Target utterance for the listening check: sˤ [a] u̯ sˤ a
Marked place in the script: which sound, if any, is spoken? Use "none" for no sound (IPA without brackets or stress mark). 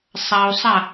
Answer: a